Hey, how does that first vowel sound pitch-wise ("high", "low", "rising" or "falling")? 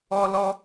high